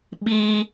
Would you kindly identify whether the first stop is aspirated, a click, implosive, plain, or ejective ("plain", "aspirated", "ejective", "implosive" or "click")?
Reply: implosive